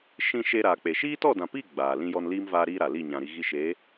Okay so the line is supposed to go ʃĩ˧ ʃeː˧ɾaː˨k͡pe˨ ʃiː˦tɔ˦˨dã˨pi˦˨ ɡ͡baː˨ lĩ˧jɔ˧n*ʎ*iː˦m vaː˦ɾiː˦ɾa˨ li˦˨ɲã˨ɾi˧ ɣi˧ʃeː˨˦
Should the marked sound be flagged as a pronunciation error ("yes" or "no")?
yes